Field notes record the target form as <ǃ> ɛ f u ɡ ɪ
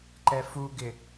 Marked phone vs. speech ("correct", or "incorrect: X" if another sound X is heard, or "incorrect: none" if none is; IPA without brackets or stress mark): correct